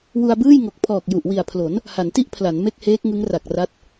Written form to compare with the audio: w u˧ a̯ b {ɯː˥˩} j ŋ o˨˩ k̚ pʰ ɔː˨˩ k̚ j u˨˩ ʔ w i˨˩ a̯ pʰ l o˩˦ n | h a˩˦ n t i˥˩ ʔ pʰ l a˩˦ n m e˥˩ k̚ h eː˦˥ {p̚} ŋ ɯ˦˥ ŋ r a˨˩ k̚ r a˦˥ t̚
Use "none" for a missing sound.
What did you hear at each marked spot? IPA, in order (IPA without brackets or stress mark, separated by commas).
ɯː˥˩, k̚